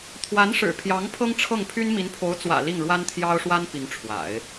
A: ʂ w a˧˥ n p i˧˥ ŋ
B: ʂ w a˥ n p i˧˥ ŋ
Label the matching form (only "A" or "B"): B